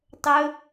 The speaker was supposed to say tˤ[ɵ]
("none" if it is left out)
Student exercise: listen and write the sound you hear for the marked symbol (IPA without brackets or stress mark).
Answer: ɵ